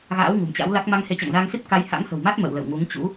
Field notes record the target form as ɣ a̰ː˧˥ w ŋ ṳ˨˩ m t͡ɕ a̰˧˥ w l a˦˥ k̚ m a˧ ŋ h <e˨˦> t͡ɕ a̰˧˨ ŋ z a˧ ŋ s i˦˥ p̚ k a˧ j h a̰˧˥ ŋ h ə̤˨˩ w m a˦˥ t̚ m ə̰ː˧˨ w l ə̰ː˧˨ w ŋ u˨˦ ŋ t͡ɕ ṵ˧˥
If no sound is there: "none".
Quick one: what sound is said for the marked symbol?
e˨˦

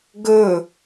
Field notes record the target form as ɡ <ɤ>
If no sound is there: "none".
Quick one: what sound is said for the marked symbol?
ɵ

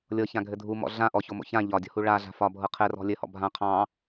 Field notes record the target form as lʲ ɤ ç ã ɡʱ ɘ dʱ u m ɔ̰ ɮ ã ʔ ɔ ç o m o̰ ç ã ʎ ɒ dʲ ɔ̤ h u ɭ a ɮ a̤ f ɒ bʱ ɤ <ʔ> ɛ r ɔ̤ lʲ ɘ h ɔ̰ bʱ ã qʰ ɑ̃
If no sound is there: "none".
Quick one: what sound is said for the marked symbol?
qʰ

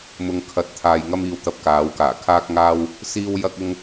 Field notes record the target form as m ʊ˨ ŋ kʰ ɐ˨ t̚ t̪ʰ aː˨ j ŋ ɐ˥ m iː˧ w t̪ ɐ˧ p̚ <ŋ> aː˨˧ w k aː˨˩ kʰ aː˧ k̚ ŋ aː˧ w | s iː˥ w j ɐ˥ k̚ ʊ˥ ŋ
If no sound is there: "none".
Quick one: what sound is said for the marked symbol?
k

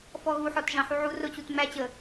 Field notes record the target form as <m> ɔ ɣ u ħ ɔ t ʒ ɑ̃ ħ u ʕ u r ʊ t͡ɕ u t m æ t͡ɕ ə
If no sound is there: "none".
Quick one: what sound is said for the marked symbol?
f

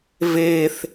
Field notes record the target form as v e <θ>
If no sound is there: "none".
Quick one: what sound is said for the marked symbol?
θ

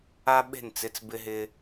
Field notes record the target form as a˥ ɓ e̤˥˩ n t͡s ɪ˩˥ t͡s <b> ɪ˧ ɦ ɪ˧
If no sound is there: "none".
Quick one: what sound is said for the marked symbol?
b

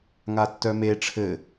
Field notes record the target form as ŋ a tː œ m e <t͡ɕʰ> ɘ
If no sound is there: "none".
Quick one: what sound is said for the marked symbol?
ʈ͡ʂʰ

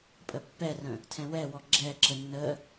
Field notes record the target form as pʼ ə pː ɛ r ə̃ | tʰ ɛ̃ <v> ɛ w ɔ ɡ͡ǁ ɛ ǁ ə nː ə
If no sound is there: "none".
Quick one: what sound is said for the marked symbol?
w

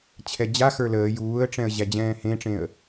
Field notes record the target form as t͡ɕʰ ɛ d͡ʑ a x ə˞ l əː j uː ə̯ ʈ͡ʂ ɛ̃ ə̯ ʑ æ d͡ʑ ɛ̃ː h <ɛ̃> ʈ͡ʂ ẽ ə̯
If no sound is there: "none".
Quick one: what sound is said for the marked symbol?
ẽ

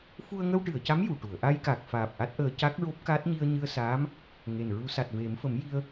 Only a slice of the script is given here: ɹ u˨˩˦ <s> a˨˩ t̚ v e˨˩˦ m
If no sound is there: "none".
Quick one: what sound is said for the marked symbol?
s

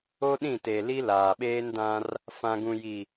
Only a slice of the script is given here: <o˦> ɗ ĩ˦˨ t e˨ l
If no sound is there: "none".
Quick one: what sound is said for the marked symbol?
o˦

